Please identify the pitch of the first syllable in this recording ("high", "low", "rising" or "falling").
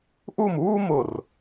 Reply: falling